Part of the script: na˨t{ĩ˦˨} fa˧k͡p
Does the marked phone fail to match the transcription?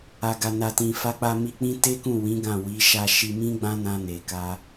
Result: yes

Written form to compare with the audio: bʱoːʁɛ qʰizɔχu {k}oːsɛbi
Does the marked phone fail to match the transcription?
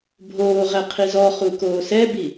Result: no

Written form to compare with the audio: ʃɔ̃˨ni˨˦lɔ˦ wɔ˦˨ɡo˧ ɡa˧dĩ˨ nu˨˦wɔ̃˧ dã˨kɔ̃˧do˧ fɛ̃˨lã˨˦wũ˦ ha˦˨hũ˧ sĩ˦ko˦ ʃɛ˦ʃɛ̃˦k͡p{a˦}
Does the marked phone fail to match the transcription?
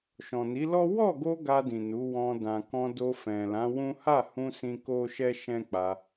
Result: yes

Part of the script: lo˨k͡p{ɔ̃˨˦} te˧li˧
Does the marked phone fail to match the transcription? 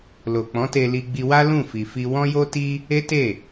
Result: no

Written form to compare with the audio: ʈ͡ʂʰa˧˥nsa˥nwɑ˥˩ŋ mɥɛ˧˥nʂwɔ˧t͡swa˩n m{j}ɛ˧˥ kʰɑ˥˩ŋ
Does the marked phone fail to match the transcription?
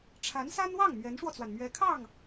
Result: yes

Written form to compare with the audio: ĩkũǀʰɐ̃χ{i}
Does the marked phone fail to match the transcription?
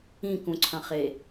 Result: yes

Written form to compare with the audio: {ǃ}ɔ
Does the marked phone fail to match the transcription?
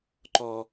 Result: no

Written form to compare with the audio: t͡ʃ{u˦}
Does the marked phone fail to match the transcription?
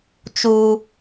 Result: yes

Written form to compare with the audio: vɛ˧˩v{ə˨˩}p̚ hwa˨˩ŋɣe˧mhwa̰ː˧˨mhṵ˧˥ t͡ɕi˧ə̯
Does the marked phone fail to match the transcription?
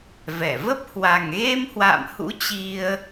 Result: yes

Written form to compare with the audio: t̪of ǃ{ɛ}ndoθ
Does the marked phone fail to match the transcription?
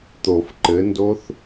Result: yes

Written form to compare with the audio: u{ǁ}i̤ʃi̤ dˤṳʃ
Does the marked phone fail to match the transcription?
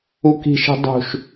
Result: yes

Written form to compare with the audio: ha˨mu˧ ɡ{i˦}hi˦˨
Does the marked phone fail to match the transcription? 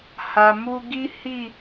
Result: no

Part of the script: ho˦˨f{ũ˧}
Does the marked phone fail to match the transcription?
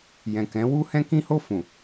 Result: yes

